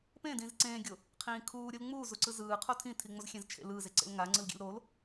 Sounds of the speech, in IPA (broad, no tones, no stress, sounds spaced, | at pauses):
p ẽ d ĩː z ǀ ẽː ɡʲ o | qʰ ĩː kʰ uː ɾʲ ɯ l ŋ͡m uː z u ǀ ɯ z ɯː qʰ o tʰ ĩ tʰ i ŋ͡m o z xʲ ẽ z t͡ʃʰ ḛ l ɯː z e ǀ ḛ l ŋ a ŋ͡ǀ ɯ l ɡʲ ḛ l ɾ o l